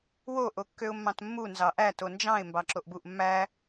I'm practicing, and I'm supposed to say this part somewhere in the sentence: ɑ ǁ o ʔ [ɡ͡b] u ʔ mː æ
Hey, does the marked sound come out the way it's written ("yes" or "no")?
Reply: no